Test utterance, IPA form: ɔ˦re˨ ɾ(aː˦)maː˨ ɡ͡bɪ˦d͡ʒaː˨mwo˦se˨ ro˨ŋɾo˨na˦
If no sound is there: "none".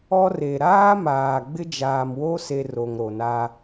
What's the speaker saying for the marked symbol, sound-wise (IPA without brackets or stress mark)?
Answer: aː˦